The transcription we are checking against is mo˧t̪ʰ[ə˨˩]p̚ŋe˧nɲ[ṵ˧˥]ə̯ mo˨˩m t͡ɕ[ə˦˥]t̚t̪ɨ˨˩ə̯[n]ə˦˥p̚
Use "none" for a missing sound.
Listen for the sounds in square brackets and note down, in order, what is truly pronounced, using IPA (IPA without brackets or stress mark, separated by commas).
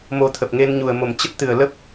ə˨˩, u˨˩, ə˦˥, l